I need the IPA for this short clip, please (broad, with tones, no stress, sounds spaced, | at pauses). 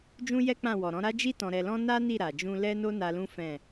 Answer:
d͡ʒ ũ˦ j ɛ˦ k͡p ã˦˨ w ɔ˨ ɾ ɔ̃˨˦ ɾ a˦ d͡ʒ i˦ t ɔ̃˧ ɾ ɛ˧ l ɔ̃˦ n a˦ n i˦˨ ɾ a˨ d͡ʒ ũ˧ l ɛ˦ n o˦ n a˧ l ũ˦ f ɛ̃˦˨